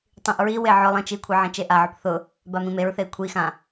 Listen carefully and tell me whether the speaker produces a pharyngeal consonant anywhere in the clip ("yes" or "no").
yes